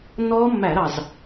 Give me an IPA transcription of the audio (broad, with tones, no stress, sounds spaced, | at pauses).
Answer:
nː ɔː˦˥ mː æ˧˩˧ ɾ ɑ˨˩ z